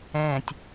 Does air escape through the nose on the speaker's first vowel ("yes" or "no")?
yes